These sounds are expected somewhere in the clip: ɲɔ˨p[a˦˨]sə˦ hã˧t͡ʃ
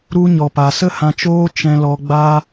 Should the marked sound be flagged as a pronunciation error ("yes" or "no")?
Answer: yes